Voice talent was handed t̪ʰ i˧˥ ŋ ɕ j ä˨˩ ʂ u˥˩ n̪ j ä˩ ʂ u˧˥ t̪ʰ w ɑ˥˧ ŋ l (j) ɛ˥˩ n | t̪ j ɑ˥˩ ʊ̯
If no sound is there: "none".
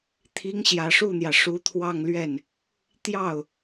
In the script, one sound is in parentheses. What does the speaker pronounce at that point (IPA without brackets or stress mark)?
ɥ